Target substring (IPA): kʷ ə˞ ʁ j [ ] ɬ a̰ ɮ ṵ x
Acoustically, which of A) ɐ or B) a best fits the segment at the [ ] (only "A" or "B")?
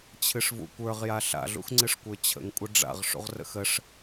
B